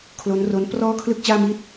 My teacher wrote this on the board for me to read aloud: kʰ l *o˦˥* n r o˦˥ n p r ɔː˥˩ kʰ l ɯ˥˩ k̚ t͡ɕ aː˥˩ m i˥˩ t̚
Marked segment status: correct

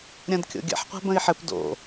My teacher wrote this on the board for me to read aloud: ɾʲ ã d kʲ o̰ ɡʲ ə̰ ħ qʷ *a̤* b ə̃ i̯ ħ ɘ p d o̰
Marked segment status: correct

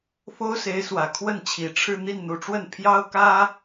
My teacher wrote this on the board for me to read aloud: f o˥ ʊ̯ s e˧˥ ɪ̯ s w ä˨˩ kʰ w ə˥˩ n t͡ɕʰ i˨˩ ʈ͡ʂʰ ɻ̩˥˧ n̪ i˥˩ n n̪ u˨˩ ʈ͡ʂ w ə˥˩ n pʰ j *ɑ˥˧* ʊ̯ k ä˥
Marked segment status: incorrect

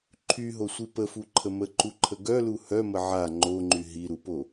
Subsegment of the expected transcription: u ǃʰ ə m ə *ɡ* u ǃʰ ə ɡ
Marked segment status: incorrect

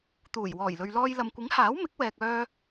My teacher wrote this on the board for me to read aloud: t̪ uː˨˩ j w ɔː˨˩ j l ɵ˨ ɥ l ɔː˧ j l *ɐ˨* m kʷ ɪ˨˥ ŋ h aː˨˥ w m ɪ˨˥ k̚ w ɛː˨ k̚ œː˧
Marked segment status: correct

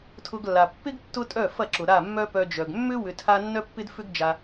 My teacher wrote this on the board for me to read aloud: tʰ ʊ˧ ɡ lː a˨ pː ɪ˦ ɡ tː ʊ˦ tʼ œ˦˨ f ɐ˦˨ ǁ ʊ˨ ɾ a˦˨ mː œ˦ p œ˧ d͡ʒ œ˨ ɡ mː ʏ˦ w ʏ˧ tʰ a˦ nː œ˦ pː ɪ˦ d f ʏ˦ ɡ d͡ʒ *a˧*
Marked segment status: correct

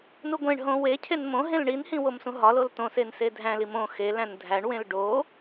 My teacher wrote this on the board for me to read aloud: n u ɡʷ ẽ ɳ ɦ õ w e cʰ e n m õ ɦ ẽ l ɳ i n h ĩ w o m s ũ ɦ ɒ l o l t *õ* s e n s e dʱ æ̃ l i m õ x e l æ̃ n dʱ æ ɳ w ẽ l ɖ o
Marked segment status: correct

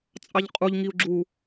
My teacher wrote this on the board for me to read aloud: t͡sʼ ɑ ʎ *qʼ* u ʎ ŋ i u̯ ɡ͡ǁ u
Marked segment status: correct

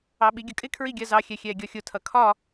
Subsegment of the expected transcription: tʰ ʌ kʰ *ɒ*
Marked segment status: correct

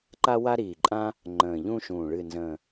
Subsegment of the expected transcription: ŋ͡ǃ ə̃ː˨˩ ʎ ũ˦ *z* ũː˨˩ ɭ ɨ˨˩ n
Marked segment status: incorrect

